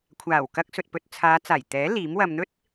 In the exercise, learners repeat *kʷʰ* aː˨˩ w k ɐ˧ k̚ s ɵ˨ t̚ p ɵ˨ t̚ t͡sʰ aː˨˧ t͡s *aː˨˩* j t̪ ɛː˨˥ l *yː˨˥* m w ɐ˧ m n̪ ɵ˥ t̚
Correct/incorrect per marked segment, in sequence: correct, correct, incorrect: iː˨˥

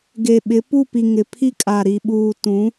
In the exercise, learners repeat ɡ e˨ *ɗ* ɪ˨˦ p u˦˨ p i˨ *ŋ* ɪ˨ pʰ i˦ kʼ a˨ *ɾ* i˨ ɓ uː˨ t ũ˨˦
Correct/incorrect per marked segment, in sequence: incorrect: ɓ, correct, correct

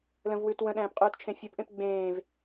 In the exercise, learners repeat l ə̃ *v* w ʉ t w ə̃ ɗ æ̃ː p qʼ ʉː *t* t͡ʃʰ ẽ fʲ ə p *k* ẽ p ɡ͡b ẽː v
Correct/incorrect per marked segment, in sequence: correct, correct, incorrect: ʔ

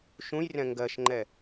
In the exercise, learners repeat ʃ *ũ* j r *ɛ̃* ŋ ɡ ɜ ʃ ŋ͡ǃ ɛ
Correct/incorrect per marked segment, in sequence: correct, correct

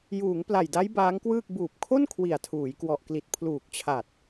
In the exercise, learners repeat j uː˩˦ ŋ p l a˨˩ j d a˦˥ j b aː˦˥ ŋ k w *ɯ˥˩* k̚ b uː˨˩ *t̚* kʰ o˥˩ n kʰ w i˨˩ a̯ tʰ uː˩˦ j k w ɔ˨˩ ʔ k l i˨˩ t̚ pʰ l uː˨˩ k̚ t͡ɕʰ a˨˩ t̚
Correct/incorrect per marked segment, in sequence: incorrect: ɯː˥˩, incorrect: p̚

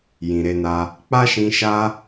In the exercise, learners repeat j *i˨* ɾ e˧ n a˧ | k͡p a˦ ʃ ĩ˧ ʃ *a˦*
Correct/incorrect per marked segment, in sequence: incorrect: ĩ˨, correct

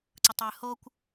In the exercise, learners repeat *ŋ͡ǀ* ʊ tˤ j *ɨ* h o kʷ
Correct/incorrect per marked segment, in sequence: incorrect: ǀ, correct

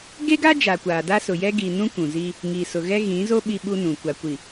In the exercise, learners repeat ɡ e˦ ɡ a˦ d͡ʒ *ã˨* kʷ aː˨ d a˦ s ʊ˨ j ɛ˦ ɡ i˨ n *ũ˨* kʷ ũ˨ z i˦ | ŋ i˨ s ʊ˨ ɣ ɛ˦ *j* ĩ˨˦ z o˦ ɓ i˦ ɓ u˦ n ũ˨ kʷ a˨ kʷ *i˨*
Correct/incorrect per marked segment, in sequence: incorrect: a˨, incorrect: ũ˦, incorrect: ɣ, correct

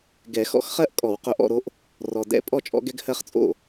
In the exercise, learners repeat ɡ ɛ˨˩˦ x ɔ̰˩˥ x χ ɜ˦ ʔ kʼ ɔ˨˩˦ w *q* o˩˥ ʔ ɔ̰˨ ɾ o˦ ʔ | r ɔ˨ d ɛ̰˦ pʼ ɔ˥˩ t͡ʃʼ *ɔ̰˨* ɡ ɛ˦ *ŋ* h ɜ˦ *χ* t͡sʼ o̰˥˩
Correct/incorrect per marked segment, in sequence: correct, incorrect: ɔ̰˦, incorrect: ɡ, correct

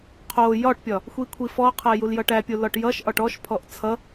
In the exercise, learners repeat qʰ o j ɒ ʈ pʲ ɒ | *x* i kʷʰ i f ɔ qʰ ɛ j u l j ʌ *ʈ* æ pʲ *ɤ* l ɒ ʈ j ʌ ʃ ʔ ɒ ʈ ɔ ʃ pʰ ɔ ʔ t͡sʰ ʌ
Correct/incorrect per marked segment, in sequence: incorrect: xʷ, correct, incorrect: o

